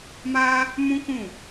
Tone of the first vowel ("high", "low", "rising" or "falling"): high